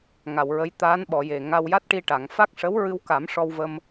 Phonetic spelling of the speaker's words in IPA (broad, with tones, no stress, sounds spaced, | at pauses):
ŋ a˨˩˨ w ɹ ə˧˥ j t̪ aː˧˥ n ɓ ɔ˨˩˨ j e˨˩ ŋ a˧ w j a˦˥ t̚ ʈ i˧ ʈ a˨˩˨ ŋ f a˦˥ k̚ ʂ ə˧˥ w ɹ ɨ˧ w k a˨˩˦ m ʂ ɔ˧ w v ə˧ m